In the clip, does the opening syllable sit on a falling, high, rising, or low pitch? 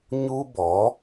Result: high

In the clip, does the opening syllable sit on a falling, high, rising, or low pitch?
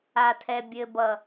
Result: low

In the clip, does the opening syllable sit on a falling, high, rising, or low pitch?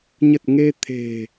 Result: low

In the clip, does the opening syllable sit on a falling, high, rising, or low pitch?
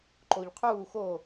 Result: low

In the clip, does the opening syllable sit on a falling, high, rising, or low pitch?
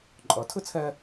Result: rising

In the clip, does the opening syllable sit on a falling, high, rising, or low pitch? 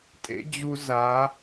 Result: high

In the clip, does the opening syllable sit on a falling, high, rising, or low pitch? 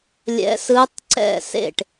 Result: rising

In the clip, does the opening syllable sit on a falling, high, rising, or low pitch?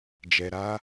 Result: low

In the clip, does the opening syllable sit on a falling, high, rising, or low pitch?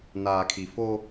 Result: low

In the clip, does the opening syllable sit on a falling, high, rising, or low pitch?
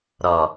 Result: low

